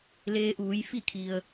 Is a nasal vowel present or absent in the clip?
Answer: absent